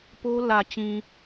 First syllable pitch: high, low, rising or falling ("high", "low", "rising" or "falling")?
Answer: high